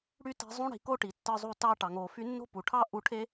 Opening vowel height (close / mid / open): close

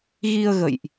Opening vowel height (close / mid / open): close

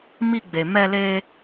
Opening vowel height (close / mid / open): close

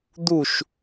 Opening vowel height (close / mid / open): close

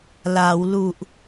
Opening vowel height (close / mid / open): open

